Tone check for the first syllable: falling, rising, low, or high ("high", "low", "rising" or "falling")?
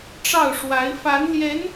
falling